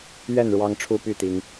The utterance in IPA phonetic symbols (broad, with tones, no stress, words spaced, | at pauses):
ɥɛ˥˨n ɻwɑ˦ŋʈ͡ʂʰu˦py˥˨t̪i˨˦ŋ